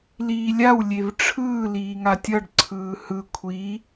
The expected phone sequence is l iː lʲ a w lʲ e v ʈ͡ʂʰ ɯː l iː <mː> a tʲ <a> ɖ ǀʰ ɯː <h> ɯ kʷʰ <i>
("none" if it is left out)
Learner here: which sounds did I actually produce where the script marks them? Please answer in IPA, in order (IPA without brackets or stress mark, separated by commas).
ŋ, ʌ, h, i